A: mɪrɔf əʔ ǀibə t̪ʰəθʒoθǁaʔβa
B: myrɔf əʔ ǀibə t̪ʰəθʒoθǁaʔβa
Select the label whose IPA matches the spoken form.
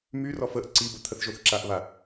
B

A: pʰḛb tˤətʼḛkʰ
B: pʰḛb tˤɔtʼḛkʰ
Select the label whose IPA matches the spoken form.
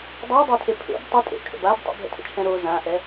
A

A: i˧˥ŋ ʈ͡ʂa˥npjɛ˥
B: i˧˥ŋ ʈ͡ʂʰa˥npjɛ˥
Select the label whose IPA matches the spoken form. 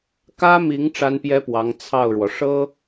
A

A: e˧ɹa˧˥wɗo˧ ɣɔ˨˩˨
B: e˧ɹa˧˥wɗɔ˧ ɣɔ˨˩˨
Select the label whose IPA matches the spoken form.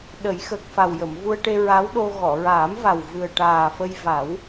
A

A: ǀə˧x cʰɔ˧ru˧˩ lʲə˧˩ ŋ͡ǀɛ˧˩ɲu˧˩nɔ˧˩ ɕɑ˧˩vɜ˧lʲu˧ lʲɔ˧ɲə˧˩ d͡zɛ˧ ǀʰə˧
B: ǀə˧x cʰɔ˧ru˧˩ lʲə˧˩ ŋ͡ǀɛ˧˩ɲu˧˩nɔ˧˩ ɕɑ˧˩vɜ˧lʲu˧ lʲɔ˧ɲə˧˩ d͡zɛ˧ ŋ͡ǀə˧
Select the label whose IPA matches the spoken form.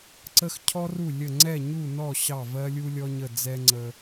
B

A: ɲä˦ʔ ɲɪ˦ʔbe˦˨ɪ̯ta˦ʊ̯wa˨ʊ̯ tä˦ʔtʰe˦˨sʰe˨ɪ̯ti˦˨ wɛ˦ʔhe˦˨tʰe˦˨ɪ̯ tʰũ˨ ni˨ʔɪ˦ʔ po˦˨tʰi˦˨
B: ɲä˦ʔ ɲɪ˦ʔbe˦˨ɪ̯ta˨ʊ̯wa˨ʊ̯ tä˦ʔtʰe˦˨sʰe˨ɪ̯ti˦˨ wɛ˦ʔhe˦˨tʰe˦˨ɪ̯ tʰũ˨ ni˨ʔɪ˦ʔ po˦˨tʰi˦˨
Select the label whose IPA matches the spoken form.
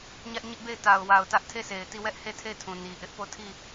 B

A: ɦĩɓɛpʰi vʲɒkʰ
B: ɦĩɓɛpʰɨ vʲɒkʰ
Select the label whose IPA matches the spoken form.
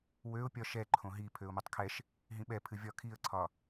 B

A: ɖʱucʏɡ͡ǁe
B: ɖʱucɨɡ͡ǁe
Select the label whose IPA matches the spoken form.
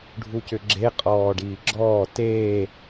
A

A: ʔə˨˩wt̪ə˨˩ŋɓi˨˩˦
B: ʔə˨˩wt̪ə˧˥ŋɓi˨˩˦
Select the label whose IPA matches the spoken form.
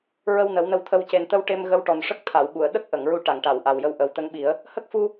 B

